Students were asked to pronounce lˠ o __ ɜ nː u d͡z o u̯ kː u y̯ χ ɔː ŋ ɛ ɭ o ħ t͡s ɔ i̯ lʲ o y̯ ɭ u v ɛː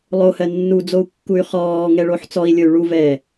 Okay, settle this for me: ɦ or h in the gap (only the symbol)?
h